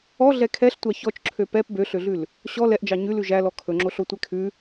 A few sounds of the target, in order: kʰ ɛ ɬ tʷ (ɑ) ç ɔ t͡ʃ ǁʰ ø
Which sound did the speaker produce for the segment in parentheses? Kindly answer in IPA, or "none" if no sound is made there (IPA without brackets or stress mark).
ɑ